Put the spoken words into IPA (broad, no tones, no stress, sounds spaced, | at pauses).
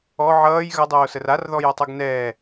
ɔ ʕ ʌː j ɣ ʌ dˤ oː s ə r a r ð ɔ j ʌ tˤ ʌ ɡ n ɛː